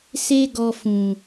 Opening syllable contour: high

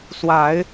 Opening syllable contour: low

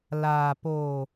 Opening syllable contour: low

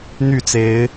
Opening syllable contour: falling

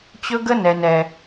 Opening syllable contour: high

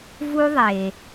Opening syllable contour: high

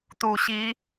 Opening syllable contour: low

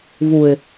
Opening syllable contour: low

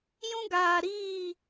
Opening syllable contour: high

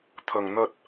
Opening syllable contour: low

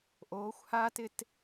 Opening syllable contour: rising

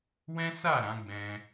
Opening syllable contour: high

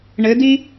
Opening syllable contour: rising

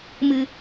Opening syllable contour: low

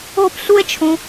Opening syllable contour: high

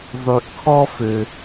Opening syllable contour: low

